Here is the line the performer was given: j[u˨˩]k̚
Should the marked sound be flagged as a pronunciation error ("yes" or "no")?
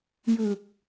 yes